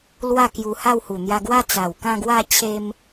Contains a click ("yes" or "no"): no